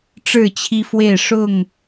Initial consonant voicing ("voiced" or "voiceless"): voiceless